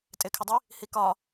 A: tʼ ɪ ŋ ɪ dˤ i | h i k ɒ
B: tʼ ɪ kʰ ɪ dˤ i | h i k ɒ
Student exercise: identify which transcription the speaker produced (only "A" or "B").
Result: B